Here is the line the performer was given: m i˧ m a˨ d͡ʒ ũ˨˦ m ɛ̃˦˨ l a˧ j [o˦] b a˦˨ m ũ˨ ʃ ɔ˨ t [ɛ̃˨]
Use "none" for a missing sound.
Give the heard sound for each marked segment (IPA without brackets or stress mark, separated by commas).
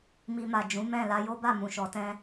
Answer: o˦, ɛ̃˧